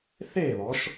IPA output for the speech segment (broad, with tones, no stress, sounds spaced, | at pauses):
θ eː˥˨ β ɔ˩˧ ʃ